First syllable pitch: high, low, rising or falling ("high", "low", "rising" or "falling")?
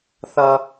high